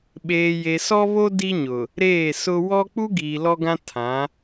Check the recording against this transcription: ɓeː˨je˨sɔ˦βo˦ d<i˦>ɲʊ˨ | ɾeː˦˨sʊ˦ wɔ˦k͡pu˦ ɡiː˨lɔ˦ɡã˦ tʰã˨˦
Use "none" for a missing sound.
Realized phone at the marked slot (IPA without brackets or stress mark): i˦